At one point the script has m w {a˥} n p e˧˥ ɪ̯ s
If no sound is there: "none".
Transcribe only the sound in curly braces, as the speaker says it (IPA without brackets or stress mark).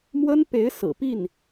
ə˥